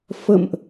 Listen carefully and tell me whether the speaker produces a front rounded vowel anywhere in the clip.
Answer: no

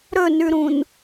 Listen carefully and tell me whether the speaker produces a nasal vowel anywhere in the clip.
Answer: yes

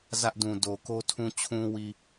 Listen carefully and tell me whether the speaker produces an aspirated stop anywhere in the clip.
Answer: yes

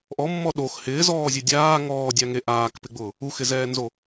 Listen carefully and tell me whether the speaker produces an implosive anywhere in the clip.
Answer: yes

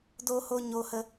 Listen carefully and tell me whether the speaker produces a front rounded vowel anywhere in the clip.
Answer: no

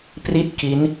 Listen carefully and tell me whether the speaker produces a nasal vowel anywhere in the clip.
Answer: no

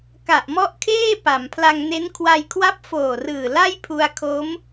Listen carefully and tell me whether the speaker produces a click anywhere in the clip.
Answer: no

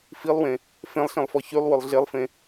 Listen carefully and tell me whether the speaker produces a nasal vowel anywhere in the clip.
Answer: yes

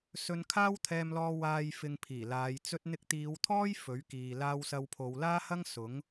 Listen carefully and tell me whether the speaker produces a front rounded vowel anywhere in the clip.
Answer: no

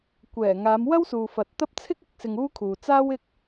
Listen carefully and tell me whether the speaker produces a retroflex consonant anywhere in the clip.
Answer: no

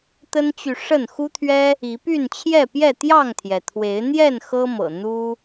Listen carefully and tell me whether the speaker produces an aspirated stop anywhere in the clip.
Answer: yes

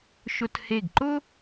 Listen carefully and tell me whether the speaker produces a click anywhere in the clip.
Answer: yes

